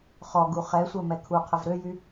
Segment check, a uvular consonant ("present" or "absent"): present